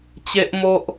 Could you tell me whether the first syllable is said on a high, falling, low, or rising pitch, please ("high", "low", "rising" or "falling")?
high